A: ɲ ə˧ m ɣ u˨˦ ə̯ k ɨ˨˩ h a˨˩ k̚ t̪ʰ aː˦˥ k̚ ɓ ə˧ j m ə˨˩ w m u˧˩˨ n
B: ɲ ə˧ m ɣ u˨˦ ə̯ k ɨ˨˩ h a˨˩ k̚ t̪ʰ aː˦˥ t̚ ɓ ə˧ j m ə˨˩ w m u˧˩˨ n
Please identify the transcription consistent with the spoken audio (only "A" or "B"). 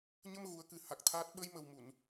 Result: B